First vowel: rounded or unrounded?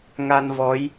unrounded